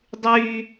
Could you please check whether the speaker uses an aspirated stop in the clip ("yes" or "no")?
no